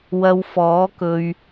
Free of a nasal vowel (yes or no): yes